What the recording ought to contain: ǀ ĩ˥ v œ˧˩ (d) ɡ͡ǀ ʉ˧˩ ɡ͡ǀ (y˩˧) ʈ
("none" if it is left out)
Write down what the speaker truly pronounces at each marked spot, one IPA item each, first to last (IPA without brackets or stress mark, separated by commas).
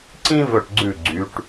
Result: ʈ, y˩˧